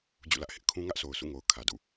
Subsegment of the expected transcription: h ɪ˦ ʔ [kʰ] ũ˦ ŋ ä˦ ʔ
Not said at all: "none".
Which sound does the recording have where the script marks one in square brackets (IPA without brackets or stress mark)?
kʰ